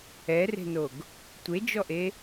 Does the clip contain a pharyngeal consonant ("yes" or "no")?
no